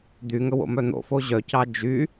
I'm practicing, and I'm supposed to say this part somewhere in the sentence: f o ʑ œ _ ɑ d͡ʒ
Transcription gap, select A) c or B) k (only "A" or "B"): A